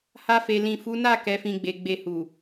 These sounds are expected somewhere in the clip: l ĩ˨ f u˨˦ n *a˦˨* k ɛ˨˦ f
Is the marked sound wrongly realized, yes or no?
no